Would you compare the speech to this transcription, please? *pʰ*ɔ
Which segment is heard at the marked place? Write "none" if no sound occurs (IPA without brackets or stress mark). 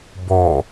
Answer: b